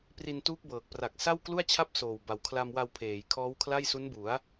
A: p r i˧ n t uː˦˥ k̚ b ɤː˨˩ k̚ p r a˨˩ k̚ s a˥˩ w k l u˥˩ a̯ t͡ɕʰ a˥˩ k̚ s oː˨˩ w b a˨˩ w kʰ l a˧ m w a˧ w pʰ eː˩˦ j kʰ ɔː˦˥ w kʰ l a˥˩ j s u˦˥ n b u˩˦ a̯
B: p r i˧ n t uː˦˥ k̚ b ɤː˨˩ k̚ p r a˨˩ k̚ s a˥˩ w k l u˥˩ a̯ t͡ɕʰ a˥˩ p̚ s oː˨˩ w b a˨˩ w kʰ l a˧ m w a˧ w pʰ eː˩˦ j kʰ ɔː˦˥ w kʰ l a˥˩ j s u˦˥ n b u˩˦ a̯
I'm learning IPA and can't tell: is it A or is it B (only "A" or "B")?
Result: B